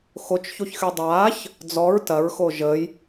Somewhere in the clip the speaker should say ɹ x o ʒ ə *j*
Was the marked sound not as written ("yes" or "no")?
no